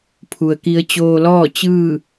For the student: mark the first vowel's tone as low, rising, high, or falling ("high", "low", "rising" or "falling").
low